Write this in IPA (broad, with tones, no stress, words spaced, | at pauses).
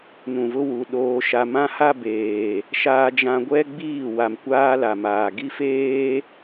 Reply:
nũ˨vʊ˦wu˨ ɗoː˦ʃa˦ mã˦ha˦ beː˨ | ʃaː˦d͡ʒã˦ ɡʷɛ˦ɡ͡biː˦˨ wa˨mkʷaː˦ la˨ maː˨ ɡi˦feː˦